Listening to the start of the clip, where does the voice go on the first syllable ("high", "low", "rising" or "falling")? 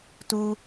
high